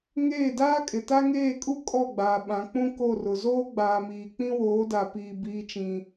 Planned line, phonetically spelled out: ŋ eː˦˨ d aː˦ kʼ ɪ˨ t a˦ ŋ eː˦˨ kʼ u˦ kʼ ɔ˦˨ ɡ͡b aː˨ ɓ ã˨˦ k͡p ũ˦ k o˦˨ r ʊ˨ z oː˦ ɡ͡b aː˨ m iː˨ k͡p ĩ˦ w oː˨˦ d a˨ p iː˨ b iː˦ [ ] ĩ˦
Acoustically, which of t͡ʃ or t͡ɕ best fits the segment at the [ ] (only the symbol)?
t͡ʃ